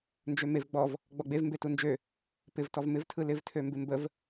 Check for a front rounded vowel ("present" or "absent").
present